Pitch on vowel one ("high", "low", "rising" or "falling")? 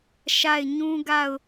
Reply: falling